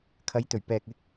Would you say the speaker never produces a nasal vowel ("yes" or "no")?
yes